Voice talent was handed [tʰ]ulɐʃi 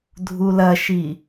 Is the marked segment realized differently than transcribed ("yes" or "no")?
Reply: yes